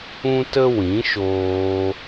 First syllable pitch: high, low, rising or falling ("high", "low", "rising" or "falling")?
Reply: high